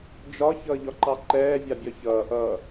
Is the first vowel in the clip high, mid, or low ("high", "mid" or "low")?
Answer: low